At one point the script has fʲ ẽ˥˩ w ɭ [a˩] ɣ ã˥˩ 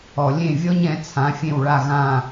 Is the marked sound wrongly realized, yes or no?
yes